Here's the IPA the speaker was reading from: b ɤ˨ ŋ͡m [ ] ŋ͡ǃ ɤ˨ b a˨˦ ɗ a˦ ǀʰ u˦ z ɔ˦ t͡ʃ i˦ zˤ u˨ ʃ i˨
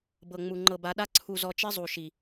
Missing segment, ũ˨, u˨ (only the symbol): u˨